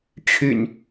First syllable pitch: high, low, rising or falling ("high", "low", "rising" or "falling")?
low